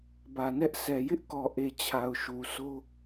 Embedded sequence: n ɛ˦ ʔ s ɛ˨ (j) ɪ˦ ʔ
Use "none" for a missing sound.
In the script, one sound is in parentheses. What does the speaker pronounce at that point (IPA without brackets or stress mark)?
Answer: j